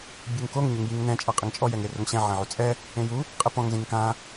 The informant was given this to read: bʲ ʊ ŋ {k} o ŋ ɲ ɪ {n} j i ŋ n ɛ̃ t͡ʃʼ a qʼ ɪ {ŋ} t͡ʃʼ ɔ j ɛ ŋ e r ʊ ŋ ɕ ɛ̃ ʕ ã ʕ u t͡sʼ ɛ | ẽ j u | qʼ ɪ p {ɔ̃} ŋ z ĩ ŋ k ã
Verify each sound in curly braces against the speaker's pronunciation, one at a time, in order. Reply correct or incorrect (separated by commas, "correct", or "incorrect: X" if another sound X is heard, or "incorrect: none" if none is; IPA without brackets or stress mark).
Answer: correct, incorrect: ŋ, correct, correct